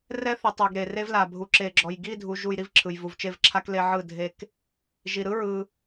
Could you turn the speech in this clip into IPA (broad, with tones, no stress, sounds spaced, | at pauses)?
r ɛ˦ θ i˨ tˤ o˨ ɡ ɾ e˨ r e˦ v l a˨ bʱ u˨ ǁ e˨ ɡ͡ǁ ɔ˨ j ɡ i˦˨ dʱ u˨ ʒ u˨ j ɾ i˦ v ǁʰ ɯ˨ j v u˨ v t͡ʃ e˦˨ v ǁʰ a˦ k l e˦ ʕ ɯ˦˨ dʱ e˦ k | ʒ i˨ ɾ ɯ˦ ɹ ɯ˦